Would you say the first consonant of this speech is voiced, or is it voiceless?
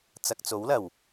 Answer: voiceless